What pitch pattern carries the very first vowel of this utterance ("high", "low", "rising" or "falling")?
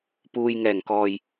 low